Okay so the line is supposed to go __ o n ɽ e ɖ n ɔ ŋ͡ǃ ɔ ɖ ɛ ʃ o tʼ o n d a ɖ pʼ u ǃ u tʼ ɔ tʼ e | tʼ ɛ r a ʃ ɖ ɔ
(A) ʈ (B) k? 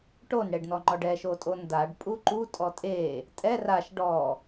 A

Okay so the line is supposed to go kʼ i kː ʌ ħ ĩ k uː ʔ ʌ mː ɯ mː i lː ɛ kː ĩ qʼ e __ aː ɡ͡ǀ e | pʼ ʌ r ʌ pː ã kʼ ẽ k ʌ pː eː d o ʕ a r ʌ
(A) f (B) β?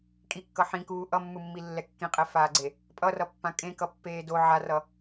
A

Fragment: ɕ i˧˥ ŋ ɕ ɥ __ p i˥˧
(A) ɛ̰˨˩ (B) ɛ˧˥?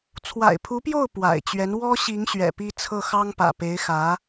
A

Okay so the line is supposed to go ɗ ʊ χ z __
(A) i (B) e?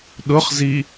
A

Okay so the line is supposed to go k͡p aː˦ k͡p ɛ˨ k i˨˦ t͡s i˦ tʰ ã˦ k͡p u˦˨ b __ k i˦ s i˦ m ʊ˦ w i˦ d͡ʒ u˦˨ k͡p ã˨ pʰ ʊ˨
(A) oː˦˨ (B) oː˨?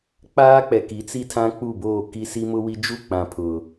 A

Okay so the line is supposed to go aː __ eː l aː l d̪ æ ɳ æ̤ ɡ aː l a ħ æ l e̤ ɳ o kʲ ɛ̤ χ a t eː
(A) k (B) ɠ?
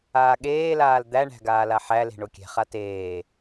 B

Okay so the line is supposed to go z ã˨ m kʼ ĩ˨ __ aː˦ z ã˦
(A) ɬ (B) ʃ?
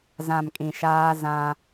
B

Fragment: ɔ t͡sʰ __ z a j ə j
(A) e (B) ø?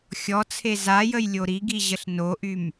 A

